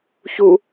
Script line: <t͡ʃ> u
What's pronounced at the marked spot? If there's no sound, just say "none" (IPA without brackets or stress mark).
ç